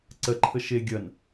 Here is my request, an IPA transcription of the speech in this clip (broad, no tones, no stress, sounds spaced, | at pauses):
ǀ ɜ ǃʰ ə ʃ e ɡʲ ɐ n